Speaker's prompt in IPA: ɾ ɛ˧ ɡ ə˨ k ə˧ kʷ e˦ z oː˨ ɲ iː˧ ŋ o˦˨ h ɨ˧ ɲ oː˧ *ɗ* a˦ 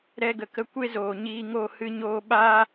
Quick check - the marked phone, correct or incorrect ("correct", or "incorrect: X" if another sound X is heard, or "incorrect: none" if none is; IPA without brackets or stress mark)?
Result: incorrect: ɓ